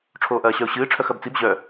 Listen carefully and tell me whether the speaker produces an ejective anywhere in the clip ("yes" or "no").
no